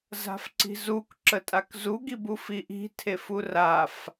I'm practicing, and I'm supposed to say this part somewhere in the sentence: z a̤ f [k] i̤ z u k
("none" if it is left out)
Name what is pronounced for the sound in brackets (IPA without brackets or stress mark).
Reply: ǀ